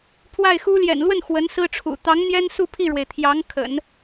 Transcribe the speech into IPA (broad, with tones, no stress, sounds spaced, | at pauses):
pʰ w a˥˩ ɪ̯ x u˥ l j ɛ̰˨˩ n l w ə˥˩ n x w ə˧˥ n s ɹ̩˥ ʈ͡ʂʰ ṵ˨˩ t̪ ɑ˧˥ ŋ n̪ j ɛ˥ n s u˥˧ pʰ i˥˩ ɻ w e˩ ɪ̯ t̪ʰ j ɑ˧˥ ŋ kʰ ə̰˨˩˦ n